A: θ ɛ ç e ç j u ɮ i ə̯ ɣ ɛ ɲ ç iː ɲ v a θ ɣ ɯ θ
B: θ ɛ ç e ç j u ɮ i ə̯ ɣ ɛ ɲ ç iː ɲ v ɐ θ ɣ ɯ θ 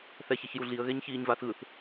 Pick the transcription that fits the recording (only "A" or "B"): A